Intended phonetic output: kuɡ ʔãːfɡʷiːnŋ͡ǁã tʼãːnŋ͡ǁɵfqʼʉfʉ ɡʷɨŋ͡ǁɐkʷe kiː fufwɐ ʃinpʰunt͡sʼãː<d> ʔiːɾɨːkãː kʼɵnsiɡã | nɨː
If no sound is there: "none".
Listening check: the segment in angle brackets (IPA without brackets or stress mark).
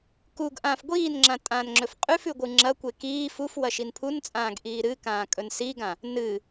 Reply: ɡ